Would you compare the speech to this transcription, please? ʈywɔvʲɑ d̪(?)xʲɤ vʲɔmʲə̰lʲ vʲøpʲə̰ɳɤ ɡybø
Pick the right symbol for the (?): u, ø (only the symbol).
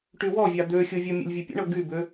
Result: ø